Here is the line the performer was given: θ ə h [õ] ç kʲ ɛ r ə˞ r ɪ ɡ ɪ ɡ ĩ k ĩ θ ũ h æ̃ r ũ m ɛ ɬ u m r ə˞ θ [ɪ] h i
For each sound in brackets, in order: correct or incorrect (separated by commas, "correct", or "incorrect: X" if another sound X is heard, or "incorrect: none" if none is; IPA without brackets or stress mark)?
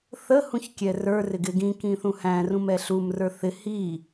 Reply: incorrect: ũ, correct